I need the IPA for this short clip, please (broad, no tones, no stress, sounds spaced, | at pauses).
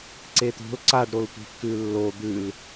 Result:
ǀ e t̪ o̤ l ǀ a ɖ ɾ o l tʷ i̤ kː ʉ lː o d̪ ʉ l